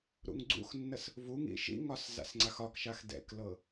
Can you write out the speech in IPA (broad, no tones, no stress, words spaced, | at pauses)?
ɾṵŋɡ͡ǀṵxnːəs | vuŋḭ ʃḭŋɒs za̰sŋ͡ǀaxɒkʃax dɛ̰klɤ